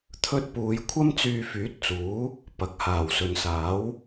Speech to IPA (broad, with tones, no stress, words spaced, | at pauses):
t̪ʰɵ˥t̚ puː˨˧j kʷʰɐ˥mt͡syː˧fyː˨˥t̚t͡suː˨˥ | pɐ˨k̚ haː˨˩wsɵ˨nsaː˨˥w